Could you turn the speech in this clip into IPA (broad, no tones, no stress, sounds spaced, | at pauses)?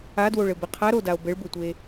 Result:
a d w o ɭ ɘ b ɘ qʰ a ɾ o d a o̯ b ɘ ɭ b ɘ tʷ e